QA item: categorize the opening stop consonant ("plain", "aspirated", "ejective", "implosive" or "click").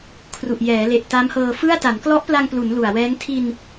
aspirated